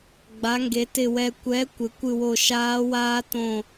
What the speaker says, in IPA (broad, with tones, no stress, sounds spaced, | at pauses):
ɡ͡b a˨˥ ŋ ɡ e˨˥ t ɪ˦˨ w ɛ˦˨ kʷ ɛ˨˥ kʷ ɪ˨˥ kʷ ɨ˦˨ w o˦˨ ʃ aː˦˥ w aː˦˥ t õ˦˨